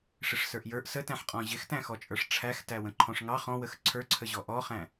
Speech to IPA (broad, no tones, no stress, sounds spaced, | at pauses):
ʂ ɪ ʂ s ə˞ ʔ j ə˞ ʔ s ə t æ̃ ħ qʼ ɔ̃ ʑ ɪ x t æ̃ x ɔ t͡ʃʼ ə˞ ʂ ʈ͡ʂʰ æ x t æ w ə̃ ǃʰ ɔ̃ ʂ ŋ ɑ χ ɔ̃ w ə x ǀʰ ə˞ ǀʰ ə ʑ ɔ ʔ ɔ χ æ̃